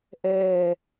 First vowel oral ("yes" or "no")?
yes